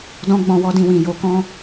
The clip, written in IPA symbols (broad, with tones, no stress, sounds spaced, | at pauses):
d ɔ̃˦ ɡ͡b ɔ̃˧ w ɔ˦ d ĩ˧ w ĩ˨ j o˨˦ k ɔ̃˦